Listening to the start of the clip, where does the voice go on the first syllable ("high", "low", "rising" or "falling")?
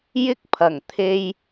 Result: high